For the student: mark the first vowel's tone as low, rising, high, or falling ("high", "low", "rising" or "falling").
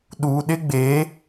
low